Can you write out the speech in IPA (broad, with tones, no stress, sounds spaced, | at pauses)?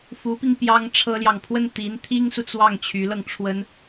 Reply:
f u˧˥ p i˧ ŋ p j ɑ˥ ŋ ʈ͡ʂʰ ɤ˥ l j ɑ˨ ŋ pʰ w ə˥˩ n t̪ i˧˥ n t̪ʰ i˥ ŋ s u˨ t͡s w ɑ˥˩ ŋ t͡ɕʰ y˧˥ l ɤ˧ ŋ ʈ͡ʂʰ w ə˥ n